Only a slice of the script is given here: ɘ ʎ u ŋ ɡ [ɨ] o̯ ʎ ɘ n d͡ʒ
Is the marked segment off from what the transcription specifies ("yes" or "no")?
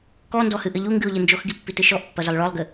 no